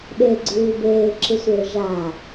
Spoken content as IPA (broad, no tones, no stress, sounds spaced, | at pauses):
ɓ e ɡ͡ǀ ʉː b eː ǁ ɨ sʷ eː ʒ a